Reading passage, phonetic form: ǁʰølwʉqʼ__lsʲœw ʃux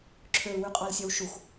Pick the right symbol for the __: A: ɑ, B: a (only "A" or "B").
A